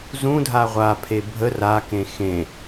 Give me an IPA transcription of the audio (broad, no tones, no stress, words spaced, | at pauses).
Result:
zũdʱa ʁʷapʰe bʱə rakẽ xẽ